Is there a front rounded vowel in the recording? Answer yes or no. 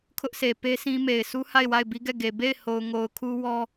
no